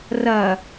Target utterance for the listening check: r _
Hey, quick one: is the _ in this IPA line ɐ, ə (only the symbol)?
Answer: ɐ